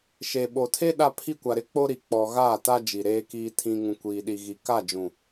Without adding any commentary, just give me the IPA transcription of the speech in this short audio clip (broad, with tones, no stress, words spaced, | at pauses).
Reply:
ʃe˨ɓo˨tʰe˦ ɗa˦pʰi˦kʷa˨ɾɪ˦ k͡po˦ ɾi˨k͡pɔ˨ɣaː˦˨ta˦ d͡ʒi˨ɾeː˦kiː˦tʰĩ˦ ŋũ˦kʷiː˦ɗi˦ɣi˦ ka˦˨d͡ʒũ˨